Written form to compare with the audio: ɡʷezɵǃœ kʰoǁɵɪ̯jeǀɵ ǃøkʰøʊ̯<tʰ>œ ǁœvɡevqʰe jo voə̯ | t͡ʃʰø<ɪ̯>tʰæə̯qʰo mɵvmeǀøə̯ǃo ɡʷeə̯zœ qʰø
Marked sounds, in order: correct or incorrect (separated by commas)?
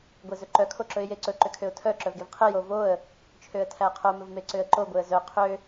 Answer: correct, incorrect